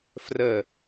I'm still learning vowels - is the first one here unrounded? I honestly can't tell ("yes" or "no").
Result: yes